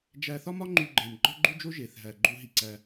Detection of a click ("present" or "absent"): present